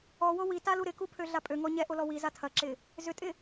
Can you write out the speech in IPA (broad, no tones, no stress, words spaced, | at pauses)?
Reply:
ɔwo witalu ɾɪkupʰøɮa pʼøŋɔ ɲɛʔolɔ wiza tʰɐǁɪ | zʏtʼɪ